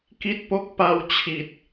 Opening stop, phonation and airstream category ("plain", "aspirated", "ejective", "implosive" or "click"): plain